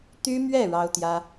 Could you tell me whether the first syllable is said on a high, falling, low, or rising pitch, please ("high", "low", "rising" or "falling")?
high